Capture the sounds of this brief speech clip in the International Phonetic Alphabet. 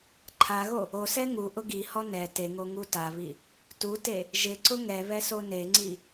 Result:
ǃʰ a ɣ o | o s ɛ ŋ u ʔ ʊ ɡ i h ɔ n ɛ t e ŋ o ŋ u t a β i | t u t e | ʒ ɪ ǀ ʊ ŋ ɛ β ɛ s o n e ŋ͡ǀ i

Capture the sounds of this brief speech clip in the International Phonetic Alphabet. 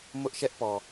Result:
m ʊ˦ ʔ ʃ ɛ˦ ʔ p ɔ˨

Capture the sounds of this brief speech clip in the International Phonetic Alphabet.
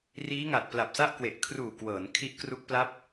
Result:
r iː˦˥ ŋ a˨˩ t̚ p l a˨˩ p̚ s a˥˩ ʔ k w e˨˩ ʔ kʰ r uː˨˩ k w ɤː˩˦ n kʰ i˦˥ ʔ k r u˦˥ k̚ p l a˦˥ p̚

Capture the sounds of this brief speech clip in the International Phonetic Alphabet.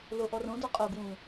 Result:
l o ʔ ɔ r õ d ɔ qʼ o ɡ w ũː

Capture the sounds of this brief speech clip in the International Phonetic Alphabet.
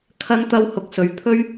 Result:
kʰ ɐ˥ n t̪ ɐ˥ w h ʊ˧ k̚ s ɵ˨˧ ɥ pʰ ɵ˥ ɥ

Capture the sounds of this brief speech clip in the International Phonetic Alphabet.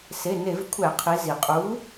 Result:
s e˩˧˩ n e˧˩˧ v kʷʰ æ˧˩˧ qʰ i˩˧ z i˩ qʼ u˨˥

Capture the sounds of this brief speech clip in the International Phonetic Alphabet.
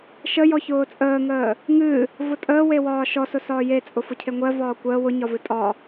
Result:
ʃ ə j ɔ ç ʊː t͡sʼ əː ŋ əː | ŋ ɨ | v ʊ tʼ əː w e w ɒː ʃ ɔ s ʊ s ɒː j e t͡sʼ ʊ f ʊ cʰ e ŋʷ ɜ v ɒː kʷ əː w ʊ ɲ ɒ v ɨ tʼ ɒ

